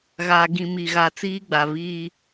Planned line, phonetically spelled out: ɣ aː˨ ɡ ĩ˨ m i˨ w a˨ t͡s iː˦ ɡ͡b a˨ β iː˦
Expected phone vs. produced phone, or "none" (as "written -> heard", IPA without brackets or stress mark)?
w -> ɣ